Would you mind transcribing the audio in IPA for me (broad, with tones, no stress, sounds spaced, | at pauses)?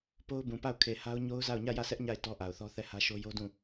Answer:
p o˦ ʊ̯ b ũ˨ p a˦˨ ʊ̯ kʰ e˨ h a˦ ʊ̯ ɲ o˦ ʊ̯ z a˦˨ ʊ̯ ɲ ä˦˨ j ä˦˨ s ɛ˦ ʔ ɲ a˦˨ ɪ̯ t ɔ˦ ʔ a˨ ʊ̯ θ ɔ˦ θ ɛ˦˨ h ä˦ ʃ o˦ j o˦ d ũ˦˨